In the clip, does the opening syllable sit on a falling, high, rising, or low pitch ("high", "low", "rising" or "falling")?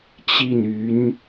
falling